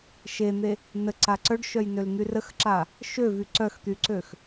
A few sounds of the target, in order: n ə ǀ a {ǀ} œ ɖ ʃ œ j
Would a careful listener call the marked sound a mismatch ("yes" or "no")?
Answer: no